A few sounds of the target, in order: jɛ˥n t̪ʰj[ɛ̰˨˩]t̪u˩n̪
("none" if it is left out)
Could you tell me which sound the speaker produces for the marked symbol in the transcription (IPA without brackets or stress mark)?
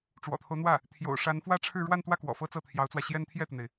ɛ˥˩